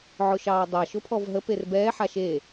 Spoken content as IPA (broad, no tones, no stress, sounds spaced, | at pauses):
ʕ ʊ ʃ ɑː dˤ a ʃ ʊ pʰ ɔ v ɦ ə p e r b ɛː ħ a ʃ e